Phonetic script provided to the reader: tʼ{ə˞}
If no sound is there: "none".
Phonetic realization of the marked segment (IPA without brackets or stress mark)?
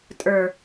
ə˞